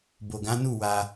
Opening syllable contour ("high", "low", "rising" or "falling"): low